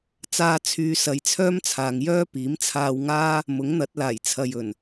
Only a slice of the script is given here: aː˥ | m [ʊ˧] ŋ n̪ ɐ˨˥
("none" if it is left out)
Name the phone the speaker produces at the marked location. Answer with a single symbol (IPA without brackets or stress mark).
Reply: ʊ˨˥